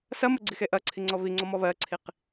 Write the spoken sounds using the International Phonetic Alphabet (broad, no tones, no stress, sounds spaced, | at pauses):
s ɐ m ɘ ɡ͡ǀ i x e ʔ ɐ ǀʰ i ŋ͡ǀ ɔ β i ŋ͡ǀ ɔ m ɔ β ɜ ǀʰ i q